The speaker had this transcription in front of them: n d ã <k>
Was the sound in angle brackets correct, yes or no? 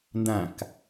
yes